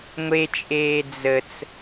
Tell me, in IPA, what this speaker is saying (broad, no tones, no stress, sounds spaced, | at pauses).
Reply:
ŋʷ e t͡ʃʼ eː d͡z ə t͡s